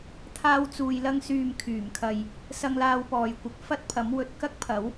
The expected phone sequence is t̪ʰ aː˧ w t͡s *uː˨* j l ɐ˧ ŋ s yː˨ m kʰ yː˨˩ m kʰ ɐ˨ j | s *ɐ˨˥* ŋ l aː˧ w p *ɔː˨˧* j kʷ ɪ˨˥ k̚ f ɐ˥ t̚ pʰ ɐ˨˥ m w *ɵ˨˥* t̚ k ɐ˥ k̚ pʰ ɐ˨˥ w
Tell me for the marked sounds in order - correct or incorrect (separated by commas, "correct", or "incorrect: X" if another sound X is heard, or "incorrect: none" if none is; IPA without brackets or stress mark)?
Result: correct, incorrect: ɐ˧, incorrect: ɔː˨, incorrect: ɵ˨